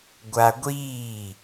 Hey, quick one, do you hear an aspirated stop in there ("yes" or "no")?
no